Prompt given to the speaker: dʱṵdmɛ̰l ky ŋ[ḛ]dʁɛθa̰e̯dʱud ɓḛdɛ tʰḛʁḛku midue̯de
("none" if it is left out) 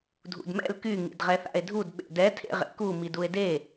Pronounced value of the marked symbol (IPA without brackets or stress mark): ḭ